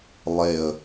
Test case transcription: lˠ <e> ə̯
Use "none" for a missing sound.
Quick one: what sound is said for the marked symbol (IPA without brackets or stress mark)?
e